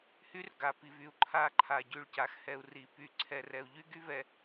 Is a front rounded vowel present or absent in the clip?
present